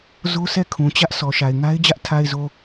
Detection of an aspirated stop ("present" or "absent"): present